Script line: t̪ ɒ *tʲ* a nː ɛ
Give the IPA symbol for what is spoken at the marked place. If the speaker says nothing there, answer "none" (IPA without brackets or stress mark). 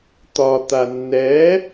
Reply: t̪